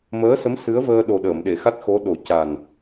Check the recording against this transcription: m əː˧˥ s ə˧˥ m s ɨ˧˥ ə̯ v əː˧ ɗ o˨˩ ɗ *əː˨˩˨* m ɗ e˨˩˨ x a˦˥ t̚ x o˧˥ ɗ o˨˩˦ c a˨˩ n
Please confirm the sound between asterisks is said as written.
yes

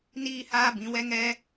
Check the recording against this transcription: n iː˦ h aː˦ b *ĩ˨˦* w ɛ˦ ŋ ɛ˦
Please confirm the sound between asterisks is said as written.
yes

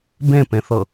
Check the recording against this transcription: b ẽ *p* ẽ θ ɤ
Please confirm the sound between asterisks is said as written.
yes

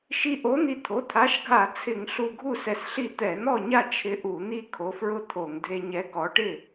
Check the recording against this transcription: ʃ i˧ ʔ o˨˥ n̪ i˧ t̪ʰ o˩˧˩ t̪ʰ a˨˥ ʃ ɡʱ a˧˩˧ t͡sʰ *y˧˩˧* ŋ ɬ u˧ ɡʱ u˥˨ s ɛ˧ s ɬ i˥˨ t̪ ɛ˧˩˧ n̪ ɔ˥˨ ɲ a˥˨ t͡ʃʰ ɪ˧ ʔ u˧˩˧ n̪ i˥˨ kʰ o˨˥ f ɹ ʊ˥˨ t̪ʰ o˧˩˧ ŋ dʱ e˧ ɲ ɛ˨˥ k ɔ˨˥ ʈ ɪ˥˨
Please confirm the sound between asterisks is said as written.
no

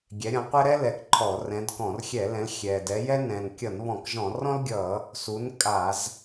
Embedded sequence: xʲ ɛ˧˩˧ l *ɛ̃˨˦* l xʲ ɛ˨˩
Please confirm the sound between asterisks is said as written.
yes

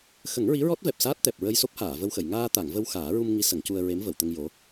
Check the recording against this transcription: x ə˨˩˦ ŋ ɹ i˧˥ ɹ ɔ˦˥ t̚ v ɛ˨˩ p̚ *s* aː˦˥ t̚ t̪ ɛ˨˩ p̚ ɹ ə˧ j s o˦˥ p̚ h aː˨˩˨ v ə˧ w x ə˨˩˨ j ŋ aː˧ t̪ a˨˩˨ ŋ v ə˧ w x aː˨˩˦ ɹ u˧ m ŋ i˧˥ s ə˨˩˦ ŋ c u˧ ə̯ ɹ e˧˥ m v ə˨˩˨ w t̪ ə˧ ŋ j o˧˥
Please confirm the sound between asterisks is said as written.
yes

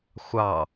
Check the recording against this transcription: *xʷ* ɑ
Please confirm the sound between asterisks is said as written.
yes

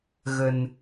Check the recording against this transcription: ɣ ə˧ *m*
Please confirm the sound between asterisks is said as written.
no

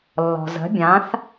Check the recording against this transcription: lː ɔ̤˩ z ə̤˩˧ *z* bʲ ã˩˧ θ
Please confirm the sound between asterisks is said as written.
no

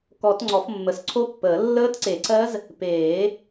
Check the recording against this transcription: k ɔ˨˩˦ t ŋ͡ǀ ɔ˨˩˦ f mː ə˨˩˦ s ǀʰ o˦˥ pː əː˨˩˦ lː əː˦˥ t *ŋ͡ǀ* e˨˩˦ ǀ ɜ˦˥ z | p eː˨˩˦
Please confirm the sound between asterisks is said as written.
no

